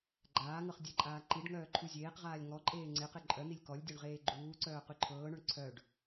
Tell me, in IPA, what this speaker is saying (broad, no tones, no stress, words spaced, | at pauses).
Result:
ɡ͡ǃaːŋɤχ dʲɘǃʼaː ǃiɖŋœː ǃʰuzʲeːqʁaːlʲ ŋɔǃʼeː ŋ͡ǀeqe ǃʼœn̪ilʲ kɔlʲdʲœɳ ʁeːɡ͡ǃuːǀœː qyǃʰɤːɳœɳ ǀʰœɖ